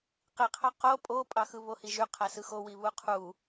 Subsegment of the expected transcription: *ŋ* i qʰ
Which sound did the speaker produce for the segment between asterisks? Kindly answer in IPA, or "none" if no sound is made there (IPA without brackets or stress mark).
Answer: q